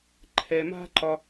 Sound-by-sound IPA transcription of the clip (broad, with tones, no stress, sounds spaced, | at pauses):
ǃʰ ɛ˧ m a̤˦ ǃ ɒ˧